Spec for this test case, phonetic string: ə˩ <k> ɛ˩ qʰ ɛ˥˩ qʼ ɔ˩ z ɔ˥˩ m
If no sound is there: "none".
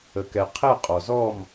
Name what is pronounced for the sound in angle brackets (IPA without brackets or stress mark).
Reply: k